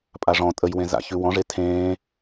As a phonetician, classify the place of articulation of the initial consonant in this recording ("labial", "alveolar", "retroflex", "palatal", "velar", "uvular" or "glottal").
labial